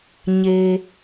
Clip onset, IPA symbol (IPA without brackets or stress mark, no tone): ɲ